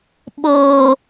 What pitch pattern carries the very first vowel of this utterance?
low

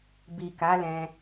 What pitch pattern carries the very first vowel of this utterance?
low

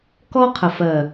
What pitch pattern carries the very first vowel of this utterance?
high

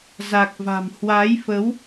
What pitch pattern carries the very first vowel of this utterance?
low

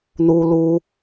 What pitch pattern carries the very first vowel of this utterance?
high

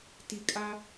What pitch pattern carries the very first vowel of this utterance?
low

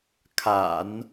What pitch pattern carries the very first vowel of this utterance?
low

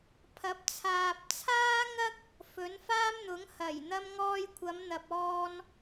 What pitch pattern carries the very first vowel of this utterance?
rising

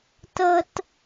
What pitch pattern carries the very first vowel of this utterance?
high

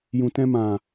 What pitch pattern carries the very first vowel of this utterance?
low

